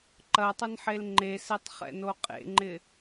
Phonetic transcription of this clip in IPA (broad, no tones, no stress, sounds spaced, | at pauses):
ǃ ɐ tˤ ʏ n ħ e l ŋ͡ǃ e s e tˤ χ ɛ̰ n o qʼ ḛ ŋ͡ǃ ɪ